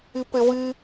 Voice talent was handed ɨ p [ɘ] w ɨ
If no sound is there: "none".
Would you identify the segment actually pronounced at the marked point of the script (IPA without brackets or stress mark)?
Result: ɘ